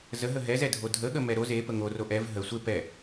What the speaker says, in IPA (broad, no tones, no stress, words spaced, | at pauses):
zəɦə ɦɛzɛdʱo dʱəɠəmɛ ɾo zepə ŋoro ʔɛv ɦə sʷe pɛ